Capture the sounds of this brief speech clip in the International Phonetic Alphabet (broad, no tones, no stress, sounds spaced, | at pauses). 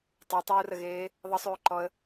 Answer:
tˤ y tˤ uː r ə ɣ eː | ðˤ ə sˤ yː ǃ ɔ ə̯